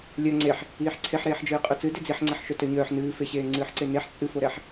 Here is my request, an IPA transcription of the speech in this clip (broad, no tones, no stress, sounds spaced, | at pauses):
lʲ œ ŋ͡ǀ e ħ | iː ħ ǀʰ e ħ ɾ eː ħ d͡ʒ ɨː qʼ œ t͡s ɨ d e d͡z i ħ ŋ͡ǀ ɛ ħ ʃ œ t œ ɲ œː ħ n ɨː f e ɕ eː ŋ͡ǀ ɨː ħ ǀ e n e ħ t͡sʼ ɨ f o ɾ ɛ ħ